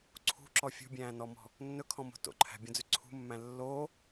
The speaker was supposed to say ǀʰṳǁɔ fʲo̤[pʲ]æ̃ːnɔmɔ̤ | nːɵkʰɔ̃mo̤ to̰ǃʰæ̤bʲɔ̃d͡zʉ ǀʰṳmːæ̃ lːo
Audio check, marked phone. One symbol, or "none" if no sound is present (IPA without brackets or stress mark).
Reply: bʲ